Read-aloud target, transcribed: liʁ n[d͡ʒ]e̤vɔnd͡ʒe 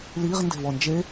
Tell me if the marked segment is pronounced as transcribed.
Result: no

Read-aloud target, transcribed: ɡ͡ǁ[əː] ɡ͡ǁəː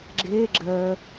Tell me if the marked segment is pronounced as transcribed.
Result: no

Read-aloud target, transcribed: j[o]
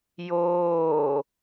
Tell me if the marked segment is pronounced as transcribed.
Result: no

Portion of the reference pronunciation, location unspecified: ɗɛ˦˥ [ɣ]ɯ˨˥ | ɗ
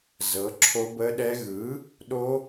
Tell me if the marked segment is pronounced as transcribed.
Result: yes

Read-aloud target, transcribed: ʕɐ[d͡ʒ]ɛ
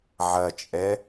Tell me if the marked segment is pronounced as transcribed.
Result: no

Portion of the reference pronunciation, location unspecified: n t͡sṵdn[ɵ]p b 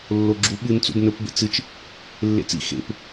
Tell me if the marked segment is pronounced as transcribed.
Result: yes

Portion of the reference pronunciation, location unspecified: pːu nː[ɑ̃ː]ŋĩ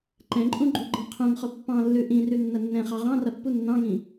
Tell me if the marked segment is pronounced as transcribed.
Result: no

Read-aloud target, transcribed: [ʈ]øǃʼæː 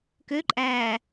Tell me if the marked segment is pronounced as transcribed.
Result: no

